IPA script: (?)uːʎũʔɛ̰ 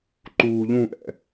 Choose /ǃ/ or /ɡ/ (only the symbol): ǃ